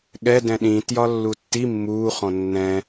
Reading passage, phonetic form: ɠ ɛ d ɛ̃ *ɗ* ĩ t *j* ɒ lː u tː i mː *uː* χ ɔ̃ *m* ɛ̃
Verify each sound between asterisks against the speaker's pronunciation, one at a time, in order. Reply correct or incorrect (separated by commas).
correct, correct, correct, incorrect